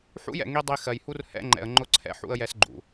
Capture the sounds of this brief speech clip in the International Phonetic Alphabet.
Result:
ħ ṵ˦ j ɛ̰˨ ŋ i˦ dˤ i˦ x ɜ˨ j h u˦ r h ɛ̰˦ ŋ͡ǃ ɛ̰˨ ə̯ ŋ͡ǃ ʊ˦ ǀʰ ɛ̰˦ ħ ṵ˦ ə̯ j ɛ˦ s ɡ͡ǃ ṵ˨

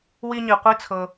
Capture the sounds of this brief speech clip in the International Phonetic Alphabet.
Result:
w i˥ ɲ i˧ qʷ i˥ t͡sʰ ɤ˧

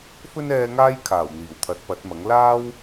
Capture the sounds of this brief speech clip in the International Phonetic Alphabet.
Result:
f ɵ˥ n ɛː˧ ŋ aː˥ j kʰ aː˨˩ w n̪ iː˨˩ w t̪ʰ ɐ˨˥ t̚ p ɐ˨˥ t̚ m ɐ˨˥ ŋ l aː˥ w

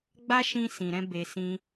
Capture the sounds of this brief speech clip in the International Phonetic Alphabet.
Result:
ɡ͡b a˦ ʃ ĩ˧ s ĩ˨ ɾ ɛ̃˧ b e˧ s ĩ˧

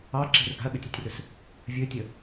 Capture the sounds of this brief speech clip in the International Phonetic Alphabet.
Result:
ɑ ǁ e̤ r ɡ a̤ ɐ̯ ɠ ə tʲ e tʲ r ɵ s | vʲ ɵ tʲ ə

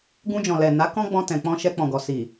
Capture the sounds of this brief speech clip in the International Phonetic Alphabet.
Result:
ɡ ũ˧ d͡ʒ ɔ̃˨ l ɛ˨ n a˨˦ k ɔ̃˦ ɡ͡b ɔ̃˧ t ɛ̃˨ k͡p ɔ̃˧ ʃ ɛ˧ k͡p ɔ̃˨ ɡ ɔ˨ s i˨

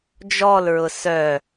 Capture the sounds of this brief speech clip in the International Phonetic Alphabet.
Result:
d͡ʒ ɔ l ɹ ʊ s œ

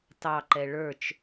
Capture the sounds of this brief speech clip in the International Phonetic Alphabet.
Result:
t ɑ ǃ ɛ ɭ ə˞ t͡ʃ

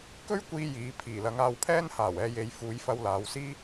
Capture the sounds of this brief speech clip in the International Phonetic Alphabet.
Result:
k ɵ˥ ɥ kʷ iː˧ j iː˨˧ pʰ iː˨˩ l ɐ˨˧ ŋ aː˧ w pʰ ɛː˥ n h aː˨˩ w ɛː˨˧ j e˨˧ j f uː˨˧ j f ɐ˧ w l aː˨˧ w s iː˥

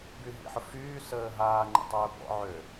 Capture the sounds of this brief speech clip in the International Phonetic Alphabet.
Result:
b y ɦ ḭ ħ ʊ f yː s əː ɦ aː ŋ͡ǃ ə̰ tˤ ʊː b ɔ̰ ʕ ø

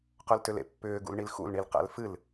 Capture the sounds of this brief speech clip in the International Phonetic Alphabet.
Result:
q œ l t ʏ l ḛ pː ʏː ɡ ṵ l ɳ i l x ṵ l ɳ i l q æ̰ l f ɨ l

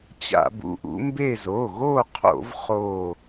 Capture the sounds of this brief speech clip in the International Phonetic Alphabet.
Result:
t͡ɕ a̰˧˩˧ b ṵ˩˧˩ ʔ ṵ˨˦ m b e˦˨ z o˩˧˩ ɣ o˦˨ qʰ o̰˧˩˧ v χ o˦˨

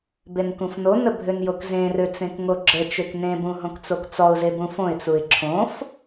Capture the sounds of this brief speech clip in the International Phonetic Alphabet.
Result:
b e n k ũ f n o n ə bʱ ø n j o k z ẽ r ø t͡s ẽ k ŋ o ɡ͡ǁ ə t͡ʃ ø k n ẽ b ũ ɦ õ k t͡s o k t͡s ɔ ʊ̯ z e b ũ f õ ɪ̯ t͡s u ɪ̯ ǁʰ õ f

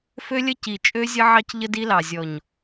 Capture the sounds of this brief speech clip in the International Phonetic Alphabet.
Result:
f ø˦ lʲ ə˦ c i˨ t͡ʃʼ ø˦ zʲ ə˦ ʕ ɑ˦ c ʎ ə˦ d i˦ l ɑ˨ zʲ ɔ˨ ɲ

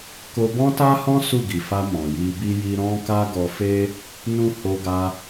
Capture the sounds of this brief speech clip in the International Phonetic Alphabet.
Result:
k o˧ b ɔ̃˦ t a˦ h ɔ̃˦ s u˦˨ ɡ i˨ f a˧ m ɔ̃˨ j i˧ b i˦ j i˦ ɾ ɔ̃˦ k a˦ ɡ ɔ˧ f e˦ | n ũ˦ h o˧ ɡ a˧

